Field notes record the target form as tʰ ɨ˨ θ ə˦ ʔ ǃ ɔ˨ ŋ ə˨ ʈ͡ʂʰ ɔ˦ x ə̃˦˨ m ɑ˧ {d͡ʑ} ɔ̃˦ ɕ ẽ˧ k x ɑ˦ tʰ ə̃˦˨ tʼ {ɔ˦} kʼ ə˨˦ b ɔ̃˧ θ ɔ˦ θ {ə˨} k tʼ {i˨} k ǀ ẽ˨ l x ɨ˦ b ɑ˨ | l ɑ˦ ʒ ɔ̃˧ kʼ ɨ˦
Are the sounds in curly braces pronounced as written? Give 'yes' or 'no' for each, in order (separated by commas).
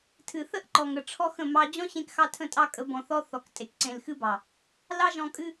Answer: yes, no, no, no